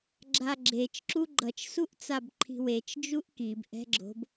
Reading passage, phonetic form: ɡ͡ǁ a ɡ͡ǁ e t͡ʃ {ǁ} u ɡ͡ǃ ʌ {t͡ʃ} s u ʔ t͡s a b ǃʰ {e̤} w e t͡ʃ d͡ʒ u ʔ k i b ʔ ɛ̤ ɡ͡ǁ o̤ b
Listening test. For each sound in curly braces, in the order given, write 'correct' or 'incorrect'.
correct, correct, incorrect

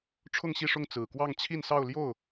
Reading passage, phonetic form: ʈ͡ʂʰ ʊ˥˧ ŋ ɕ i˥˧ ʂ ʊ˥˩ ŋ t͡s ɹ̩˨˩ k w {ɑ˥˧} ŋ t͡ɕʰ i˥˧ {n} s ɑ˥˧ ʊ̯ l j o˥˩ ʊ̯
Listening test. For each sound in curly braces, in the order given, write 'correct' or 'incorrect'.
correct, correct

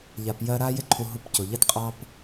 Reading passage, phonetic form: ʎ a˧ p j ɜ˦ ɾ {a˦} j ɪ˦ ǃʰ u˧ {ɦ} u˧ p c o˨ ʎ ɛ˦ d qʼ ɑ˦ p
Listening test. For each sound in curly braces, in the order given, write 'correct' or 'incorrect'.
correct, correct

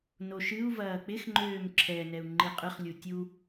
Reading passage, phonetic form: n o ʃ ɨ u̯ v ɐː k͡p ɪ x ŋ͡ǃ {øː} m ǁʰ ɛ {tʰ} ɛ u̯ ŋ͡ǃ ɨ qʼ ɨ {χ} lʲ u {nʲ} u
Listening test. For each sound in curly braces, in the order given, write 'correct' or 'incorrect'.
correct, incorrect, correct, incorrect

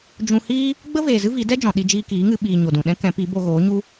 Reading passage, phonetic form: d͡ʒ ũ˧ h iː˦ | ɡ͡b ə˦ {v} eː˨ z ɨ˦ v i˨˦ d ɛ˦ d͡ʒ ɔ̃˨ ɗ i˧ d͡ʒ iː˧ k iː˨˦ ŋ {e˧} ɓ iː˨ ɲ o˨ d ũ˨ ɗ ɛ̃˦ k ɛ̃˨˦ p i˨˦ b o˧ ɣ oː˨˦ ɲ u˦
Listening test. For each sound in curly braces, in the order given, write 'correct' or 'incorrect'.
correct, incorrect

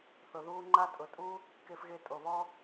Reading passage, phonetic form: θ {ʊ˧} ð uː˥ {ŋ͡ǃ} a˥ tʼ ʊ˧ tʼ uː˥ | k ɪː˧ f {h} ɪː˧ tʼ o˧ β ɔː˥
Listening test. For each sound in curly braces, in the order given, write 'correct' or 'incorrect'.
correct, correct, incorrect

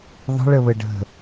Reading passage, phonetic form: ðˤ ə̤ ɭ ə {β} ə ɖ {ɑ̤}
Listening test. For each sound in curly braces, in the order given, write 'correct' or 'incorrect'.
correct, incorrect

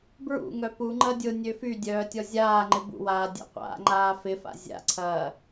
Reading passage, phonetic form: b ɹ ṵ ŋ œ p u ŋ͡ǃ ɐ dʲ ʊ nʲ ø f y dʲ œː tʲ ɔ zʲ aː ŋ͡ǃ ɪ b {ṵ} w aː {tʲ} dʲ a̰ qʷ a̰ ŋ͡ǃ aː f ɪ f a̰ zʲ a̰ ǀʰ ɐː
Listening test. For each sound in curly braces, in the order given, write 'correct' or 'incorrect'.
correct, incorrect

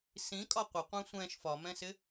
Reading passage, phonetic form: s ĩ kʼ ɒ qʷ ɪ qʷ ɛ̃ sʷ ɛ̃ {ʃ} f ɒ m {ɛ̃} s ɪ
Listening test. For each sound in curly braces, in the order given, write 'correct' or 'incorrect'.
correct, correct

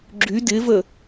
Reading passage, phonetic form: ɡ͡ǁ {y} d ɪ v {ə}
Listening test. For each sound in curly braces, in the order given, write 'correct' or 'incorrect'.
correct, correct

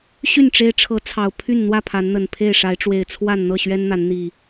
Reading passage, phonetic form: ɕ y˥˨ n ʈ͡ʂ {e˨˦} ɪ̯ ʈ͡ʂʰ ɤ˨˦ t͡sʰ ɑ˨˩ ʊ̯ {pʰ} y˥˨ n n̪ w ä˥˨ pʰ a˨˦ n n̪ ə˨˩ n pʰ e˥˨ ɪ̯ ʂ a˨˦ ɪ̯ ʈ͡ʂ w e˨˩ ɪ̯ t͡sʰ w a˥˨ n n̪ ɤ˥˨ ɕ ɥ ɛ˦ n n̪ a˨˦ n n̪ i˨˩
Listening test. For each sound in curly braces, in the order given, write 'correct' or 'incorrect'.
incorrect, correct

